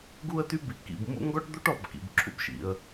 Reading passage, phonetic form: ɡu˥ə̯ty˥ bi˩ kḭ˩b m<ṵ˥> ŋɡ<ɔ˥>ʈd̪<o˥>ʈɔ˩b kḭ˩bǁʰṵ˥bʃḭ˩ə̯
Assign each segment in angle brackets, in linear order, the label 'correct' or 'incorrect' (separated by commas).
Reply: correct, correct, correct